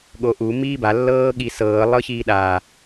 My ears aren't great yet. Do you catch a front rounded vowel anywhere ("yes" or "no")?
no